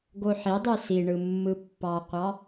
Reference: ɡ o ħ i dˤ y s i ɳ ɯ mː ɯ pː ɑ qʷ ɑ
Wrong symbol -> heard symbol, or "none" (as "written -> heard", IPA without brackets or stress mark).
none